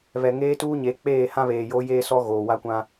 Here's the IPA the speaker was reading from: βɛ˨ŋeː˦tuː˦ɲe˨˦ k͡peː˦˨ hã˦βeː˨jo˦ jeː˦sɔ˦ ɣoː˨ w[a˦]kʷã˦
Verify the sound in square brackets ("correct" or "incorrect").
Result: correct